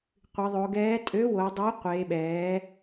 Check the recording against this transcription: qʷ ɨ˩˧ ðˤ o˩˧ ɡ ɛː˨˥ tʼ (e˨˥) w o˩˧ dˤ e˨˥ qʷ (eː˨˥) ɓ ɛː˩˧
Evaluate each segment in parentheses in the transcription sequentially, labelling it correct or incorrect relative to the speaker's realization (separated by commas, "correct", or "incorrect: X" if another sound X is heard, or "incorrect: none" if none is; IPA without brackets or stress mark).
incorrect: ø˨˥, incorrect: eː˩˧